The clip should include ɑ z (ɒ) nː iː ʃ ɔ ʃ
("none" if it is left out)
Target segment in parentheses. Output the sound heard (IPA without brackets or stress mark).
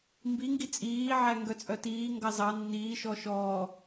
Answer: ɑ